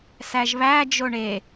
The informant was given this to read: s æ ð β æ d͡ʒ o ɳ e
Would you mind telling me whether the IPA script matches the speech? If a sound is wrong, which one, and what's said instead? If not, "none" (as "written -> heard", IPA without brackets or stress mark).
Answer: ð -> ʒ